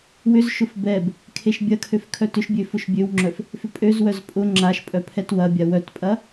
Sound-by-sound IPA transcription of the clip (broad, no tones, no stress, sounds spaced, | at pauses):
w ʏ z ʃ ʊ f b ɛ b | kʰ e ʃ bʲ ɐ kʰ ø f kʰ œ t ʏ ʃ bʲ ø f ʊ ʃ bʲ ø w ŋ͡ǁ œ f | f ʏ pʼ ø z w œ z pʼ ʊ ŋ͡ǁ a ʃ pʼ œ pʰ ɛ t w ɐ bʲ a w œ t pʼ ɐ